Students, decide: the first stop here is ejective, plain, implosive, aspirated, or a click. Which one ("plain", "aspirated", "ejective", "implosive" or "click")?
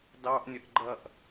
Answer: plain